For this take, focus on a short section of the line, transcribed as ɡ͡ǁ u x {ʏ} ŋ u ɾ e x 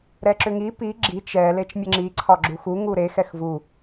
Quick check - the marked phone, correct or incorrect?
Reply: incorrect: u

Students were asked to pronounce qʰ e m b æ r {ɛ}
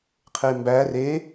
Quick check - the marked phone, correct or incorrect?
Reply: incorrect: e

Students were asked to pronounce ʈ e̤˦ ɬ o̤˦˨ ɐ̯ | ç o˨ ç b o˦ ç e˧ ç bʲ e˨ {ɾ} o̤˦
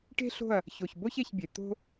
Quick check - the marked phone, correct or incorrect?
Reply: incorrect: t̪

